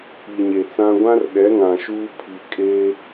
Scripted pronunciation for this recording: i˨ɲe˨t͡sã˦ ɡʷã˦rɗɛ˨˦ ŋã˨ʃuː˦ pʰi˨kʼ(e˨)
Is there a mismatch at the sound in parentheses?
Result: yes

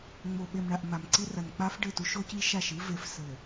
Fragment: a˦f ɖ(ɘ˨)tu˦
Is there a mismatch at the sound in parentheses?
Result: yes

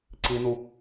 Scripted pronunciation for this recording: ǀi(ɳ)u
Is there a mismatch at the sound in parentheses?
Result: yes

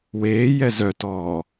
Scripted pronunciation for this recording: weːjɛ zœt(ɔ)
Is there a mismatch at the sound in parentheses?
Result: yes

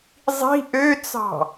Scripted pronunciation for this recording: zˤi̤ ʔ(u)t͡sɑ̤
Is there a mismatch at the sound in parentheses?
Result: yes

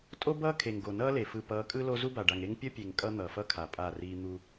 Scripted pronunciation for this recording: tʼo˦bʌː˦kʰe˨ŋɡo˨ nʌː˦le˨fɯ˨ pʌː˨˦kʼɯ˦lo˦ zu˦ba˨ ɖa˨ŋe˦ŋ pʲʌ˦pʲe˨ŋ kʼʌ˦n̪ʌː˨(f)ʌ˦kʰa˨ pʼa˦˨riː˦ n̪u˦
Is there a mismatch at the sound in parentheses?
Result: no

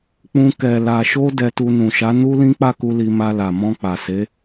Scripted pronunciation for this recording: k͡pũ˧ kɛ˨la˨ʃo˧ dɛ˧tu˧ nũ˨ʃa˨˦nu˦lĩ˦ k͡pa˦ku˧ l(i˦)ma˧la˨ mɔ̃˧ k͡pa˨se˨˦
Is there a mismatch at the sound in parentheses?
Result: yes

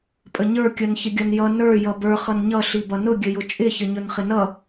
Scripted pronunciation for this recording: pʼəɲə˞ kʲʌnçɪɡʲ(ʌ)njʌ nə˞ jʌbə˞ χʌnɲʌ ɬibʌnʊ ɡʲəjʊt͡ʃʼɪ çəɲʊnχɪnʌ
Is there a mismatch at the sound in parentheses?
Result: no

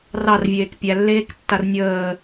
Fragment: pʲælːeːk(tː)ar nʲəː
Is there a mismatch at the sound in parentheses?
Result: no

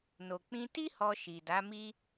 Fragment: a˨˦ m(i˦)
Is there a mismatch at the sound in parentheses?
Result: no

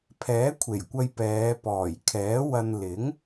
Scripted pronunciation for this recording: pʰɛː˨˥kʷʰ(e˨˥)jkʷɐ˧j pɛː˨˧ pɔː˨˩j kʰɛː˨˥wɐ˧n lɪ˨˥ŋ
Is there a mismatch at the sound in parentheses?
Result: yes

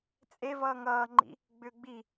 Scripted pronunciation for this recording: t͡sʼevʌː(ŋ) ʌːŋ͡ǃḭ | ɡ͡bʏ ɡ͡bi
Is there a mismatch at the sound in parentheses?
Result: no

